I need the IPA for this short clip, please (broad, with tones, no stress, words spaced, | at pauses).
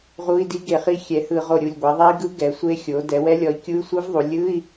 ʁu˧˥˧i̯di˦˥ ɡe˧˩χi˦˥ xʲɛ˩˧hɯ˧˩˧ʁo˧˩ɾʲu˧˩lʲ ɡʷe˩˧ðˤe˦˥i̯ɡɯ˦˥ ɡɛ˩˥sʷe˦˥xʲo˩˥ dɛ˩˧wɛ˦˥lʲɔ˩˥i̯ kʲu˧˥˧y̯sʷɯ˦˥vðˤu˩˧ lʲɯ˧˥˧i̯